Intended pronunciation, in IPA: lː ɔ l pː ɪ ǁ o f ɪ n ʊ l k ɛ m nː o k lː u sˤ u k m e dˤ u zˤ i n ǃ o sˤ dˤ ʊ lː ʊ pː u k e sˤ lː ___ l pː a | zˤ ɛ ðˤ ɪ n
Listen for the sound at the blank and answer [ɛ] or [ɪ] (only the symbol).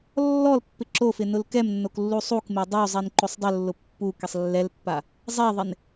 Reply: ɛ